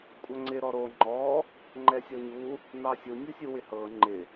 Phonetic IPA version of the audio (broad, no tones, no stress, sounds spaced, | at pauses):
kʷʼ ɐ ŋ͡ǀ ɪ ɾ ɔ ɾ o ŋ͡ǃ ɔ | ŋ͡ǃ ɛ sʲ ɔ ɲ u | n ɑ sʲ u nʲ u sʲ u w ɪ h ɤ ŋ͡ǃ ɪ